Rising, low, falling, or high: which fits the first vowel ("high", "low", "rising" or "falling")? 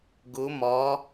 rising